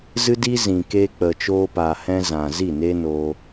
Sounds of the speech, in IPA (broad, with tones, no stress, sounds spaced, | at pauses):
z ɨ˦ d i˦ z ĩ˨ k eː˧ k͡p ə˨ t͡ʃ oː˧ p a˨ h ɛ̃˧ z ã˨ z i˦˨ n e˦ n o˧